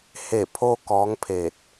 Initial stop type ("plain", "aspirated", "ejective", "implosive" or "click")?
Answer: aspirated